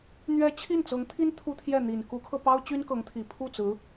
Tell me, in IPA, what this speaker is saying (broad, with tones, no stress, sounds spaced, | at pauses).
n̪ ɥ ɛ˥ t͡ɕʰ i˥˩ n t͡s ɤ˧˥ ŋ t̪ʰ i˥ n t̪ʰ u˥ t̪ʰ j ɛ˥˩ n̪ i˨˩ n k u˧˥ kʰ ɤ˧ p ɑ˥ ʊ̯ t͡ɕ y˥ n k ɤ˧˥ ŋ t̪ʰ i˨˩ pʰ u˥˩ t͡s ɹ̩˧˥